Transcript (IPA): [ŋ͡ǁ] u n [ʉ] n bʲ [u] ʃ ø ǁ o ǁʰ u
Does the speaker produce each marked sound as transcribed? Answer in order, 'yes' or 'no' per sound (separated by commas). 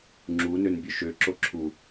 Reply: yes, no, no